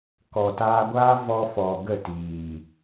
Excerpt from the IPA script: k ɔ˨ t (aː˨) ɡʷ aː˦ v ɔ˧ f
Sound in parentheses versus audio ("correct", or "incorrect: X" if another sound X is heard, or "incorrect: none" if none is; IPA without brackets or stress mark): incorrect: aː˧